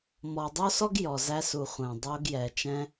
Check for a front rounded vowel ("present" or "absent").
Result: absent